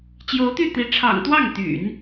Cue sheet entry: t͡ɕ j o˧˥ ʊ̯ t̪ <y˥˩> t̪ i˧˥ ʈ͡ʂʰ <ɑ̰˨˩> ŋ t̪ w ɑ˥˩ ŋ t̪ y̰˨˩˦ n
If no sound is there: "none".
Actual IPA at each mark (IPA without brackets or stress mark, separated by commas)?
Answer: y˥˩, ɑ̰˨˩